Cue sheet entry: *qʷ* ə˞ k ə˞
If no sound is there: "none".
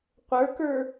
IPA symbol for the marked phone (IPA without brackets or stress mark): qʷ